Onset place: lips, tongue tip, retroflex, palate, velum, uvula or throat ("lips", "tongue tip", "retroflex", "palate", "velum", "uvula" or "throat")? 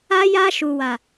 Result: palate